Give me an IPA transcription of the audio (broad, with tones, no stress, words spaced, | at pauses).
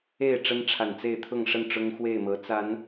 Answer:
e˥˨ɪ̯ ʈ͡ʂə˦nʈ͡ʂʰa˨˩nt͡se˥˨ɪ̯ t̪ʰʊ˥˨ŋʂə˥˨n ʈ͡ʂʊ˦ŋxwe˥˨ɪ̯mɤ˨˦ t͡sa˨˦n